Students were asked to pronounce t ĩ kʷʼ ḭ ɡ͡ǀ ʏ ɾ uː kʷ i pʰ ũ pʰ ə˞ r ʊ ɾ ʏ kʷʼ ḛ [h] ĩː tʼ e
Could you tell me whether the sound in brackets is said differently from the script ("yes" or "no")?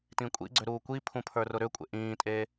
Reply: yes